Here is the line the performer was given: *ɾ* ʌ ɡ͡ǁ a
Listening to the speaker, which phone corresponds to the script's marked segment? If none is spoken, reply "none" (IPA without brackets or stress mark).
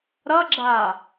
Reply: ɾ